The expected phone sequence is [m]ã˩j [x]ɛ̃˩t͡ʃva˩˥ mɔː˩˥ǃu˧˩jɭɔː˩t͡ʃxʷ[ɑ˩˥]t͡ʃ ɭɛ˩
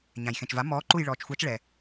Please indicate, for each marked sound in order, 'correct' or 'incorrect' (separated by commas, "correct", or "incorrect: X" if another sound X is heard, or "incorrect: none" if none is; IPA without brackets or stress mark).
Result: incorrect: ɲ, correct, incorrect: ɑ˨˩˦